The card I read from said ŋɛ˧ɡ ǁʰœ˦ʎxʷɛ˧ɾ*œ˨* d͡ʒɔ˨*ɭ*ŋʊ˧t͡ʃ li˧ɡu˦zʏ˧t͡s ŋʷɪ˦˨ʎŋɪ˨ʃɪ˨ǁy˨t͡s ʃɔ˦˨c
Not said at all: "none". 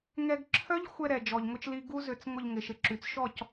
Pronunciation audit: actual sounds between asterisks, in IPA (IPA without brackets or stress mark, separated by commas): ɛ˨, ʎ